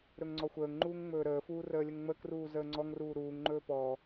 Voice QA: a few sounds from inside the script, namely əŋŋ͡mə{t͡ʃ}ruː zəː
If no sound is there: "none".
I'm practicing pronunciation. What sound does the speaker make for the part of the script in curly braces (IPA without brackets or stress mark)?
k